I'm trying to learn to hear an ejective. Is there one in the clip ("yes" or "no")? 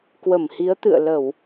no